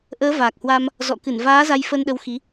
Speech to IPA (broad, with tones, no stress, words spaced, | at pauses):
ʔəː˨˦vaː˨˩k̚hwa˧m | zɔ̰˧˨kɨ˧˩nvaː˨˦ za˧jfəː˧nɗə˨˦wxi˨˦